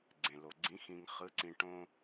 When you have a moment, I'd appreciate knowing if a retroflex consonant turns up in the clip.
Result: yes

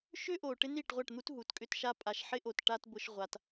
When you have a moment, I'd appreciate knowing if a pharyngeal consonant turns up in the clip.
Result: yes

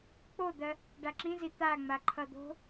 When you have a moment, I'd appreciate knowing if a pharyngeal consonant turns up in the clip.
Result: no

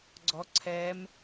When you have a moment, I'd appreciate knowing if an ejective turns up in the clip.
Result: no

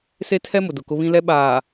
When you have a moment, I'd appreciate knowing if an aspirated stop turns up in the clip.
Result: yes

